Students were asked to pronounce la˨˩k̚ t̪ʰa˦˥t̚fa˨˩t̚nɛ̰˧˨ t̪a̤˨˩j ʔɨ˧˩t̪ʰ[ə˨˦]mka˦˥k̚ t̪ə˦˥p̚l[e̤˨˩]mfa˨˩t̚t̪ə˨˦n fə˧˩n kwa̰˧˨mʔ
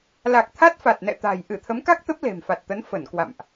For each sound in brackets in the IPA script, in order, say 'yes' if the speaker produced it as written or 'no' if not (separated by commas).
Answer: yes, yes